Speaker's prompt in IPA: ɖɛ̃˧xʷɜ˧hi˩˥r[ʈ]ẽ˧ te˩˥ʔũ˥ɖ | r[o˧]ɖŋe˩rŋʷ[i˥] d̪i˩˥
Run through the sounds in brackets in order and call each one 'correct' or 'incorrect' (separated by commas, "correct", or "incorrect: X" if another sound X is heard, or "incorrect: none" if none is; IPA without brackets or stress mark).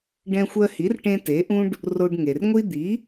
correct, correct, correct